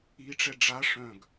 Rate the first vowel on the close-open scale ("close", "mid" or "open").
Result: close